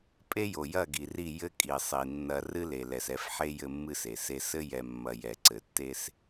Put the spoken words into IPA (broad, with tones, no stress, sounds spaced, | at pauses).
pʼ e˦ j o˨ j ɐ˦˨ ɡ i˨ r i˦˨ j ɘ˦ kʼ i˨ sˤ i˨ nː ɐ˨ r ɨ˦ l e˨ l ɛ˨ s ɛ˨˦ f ħ e˦ j ɘ˦ mː ɨ˦ s e˨ s e˦ s ɘ˦ j ɛ˨ mː ɐ˨ j ɛ˨ ǀ ɘ˨ tː e˦ s